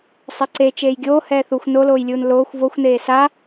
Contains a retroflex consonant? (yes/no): no